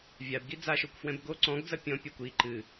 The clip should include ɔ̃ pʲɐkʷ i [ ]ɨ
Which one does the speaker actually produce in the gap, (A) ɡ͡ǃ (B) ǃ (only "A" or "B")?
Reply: B